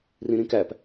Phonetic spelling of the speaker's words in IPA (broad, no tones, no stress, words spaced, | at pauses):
rĩɾĩkæp